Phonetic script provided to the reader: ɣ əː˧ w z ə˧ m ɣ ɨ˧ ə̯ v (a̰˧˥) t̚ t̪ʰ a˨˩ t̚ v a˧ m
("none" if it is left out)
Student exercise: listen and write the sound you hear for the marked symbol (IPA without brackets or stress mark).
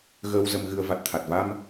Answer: a˨˩